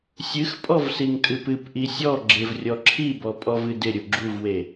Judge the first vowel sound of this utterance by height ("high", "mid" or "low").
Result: high